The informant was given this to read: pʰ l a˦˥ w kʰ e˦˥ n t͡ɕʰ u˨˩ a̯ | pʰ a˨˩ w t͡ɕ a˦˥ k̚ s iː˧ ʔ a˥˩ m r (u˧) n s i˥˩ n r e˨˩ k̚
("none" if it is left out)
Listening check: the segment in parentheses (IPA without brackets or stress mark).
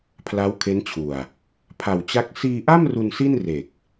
u˧